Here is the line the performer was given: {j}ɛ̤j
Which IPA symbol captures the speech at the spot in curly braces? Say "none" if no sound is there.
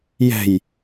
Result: j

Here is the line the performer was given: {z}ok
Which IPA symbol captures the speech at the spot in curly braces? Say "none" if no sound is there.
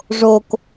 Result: ʐ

